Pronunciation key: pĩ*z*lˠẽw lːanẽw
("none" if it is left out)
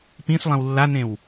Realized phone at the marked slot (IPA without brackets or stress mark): s